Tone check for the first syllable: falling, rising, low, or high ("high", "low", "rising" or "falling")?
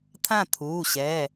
falling